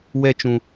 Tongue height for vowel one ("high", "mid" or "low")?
mid